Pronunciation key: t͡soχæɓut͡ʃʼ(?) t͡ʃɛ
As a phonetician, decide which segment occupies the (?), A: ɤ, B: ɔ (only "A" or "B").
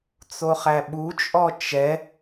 B